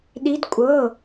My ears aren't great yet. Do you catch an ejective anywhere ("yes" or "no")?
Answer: yes